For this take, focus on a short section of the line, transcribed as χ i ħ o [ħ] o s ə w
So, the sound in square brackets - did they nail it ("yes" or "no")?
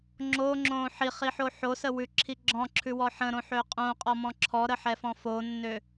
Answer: yes